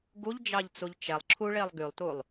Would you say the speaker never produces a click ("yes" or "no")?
no